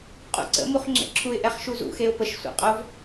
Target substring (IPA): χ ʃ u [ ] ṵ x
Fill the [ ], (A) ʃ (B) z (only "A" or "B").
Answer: B